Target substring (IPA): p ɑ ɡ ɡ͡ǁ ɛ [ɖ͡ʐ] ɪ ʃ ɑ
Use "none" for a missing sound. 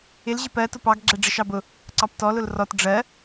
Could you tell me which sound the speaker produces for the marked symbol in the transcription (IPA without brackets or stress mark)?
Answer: ɖ͡ʐ